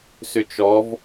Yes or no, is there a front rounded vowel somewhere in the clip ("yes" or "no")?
yes